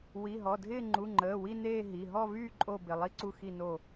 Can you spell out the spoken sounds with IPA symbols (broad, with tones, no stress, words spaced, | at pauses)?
wi˩˧˩ɦɔ˩˧˩dʱɪː˥˧ ŋ͡ǃu˩˧˩ŋ͡ǃəː˩˧˩ wi˥˧neː˥˧ ɦi˩˧˩ ɦɔ˥˧vyː˥˧ ǃʼo˥˧ bɪ˩˧˩lˠi˥˧ ǀu˥˧xi˥˧no˥˧